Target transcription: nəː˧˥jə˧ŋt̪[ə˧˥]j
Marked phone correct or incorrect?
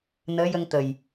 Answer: incorrect